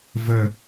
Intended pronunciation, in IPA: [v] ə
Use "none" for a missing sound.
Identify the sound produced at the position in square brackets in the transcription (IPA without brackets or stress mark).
v